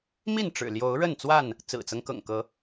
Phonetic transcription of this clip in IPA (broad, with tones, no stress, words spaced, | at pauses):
mi˥˨nʈ͡ʂɻ̩˨˩ljo˨˦ʊ̯ ɻə˥˨nt͡swa˥˨n | t͡sɹ̩˨˩t͡sɤ˦ŋkɤ̰˨˩ŋkɤ˨˦